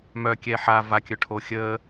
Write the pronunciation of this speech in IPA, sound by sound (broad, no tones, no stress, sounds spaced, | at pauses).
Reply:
m œ kʲ ɛː ħ a v a kʲ œ ʈʰ o xʲ əː